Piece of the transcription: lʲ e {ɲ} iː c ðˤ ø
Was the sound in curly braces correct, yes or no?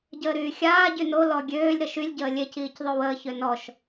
no